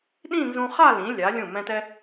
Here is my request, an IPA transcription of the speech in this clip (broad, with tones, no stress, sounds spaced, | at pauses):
ɗ ĩ˥˧ n z ũ˧ χ a˥˧ l ĩ˩˧ lʲ a˩˧ lʲ ũ˧˩ m ɛ̃˧ t ɛ˧